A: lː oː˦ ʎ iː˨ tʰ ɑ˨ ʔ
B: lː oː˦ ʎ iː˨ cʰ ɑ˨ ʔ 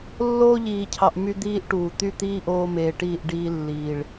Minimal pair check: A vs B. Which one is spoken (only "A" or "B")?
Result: B